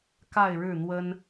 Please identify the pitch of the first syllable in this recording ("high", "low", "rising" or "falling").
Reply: falling